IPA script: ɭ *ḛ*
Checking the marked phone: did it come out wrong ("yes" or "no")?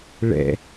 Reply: yes